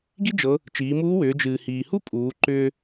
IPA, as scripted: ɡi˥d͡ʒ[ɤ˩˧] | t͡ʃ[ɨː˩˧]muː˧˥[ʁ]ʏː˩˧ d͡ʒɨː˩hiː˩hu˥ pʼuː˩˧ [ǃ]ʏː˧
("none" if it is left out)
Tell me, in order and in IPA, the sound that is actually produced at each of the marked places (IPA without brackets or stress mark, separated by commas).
ɤ˩˧, iː˩˧, w, ǃ